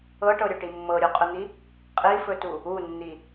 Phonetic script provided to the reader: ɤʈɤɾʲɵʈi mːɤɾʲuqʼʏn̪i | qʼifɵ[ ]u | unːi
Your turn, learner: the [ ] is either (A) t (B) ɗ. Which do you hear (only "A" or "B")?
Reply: A